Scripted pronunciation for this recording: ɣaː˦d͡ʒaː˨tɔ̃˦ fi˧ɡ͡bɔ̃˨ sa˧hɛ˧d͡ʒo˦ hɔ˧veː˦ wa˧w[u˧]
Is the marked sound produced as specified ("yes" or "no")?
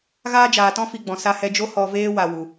no